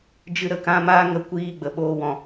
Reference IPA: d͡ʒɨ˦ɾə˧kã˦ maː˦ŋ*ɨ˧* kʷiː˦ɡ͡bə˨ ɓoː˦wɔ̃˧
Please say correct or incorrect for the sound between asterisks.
incorrect